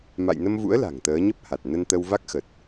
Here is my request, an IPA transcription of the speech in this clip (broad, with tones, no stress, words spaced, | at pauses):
ma̰˧˨jnə˧mvṵ˧˥ə̯ la̤˨˩ŋt̪əː˨˦ɲə˦˥p̚ha˨˩t̚ nə˧nt̪ə˧wva˦˥k̚xə˨˩t̚